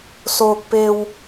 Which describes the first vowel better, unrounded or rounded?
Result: rounded